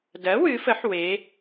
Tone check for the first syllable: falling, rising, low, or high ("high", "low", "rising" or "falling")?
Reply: rising